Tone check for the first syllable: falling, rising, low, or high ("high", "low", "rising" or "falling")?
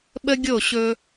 high